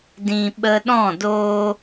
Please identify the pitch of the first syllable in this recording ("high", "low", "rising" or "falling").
high